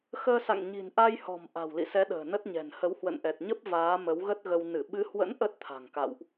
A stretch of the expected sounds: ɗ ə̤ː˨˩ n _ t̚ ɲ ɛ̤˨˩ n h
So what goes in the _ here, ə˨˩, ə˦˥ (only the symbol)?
ə˦˥